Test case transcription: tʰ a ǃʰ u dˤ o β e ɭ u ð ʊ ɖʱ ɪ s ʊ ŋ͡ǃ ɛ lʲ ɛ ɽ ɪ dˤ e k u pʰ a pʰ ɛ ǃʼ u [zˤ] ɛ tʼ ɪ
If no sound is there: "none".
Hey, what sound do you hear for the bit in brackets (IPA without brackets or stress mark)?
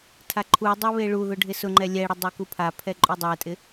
dˤ